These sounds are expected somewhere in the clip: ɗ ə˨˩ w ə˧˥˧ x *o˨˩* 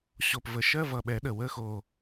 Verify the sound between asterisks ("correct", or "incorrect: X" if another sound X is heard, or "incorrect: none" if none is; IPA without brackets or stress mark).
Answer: correct